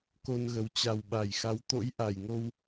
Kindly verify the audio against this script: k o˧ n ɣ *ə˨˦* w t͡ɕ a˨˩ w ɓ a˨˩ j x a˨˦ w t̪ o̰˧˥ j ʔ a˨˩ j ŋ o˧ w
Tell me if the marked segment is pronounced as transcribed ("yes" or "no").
yes